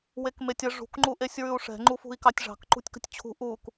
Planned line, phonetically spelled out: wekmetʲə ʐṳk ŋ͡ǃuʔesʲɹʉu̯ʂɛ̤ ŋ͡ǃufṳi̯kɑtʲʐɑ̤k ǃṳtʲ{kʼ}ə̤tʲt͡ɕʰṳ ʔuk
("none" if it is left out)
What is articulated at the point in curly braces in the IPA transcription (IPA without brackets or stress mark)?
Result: k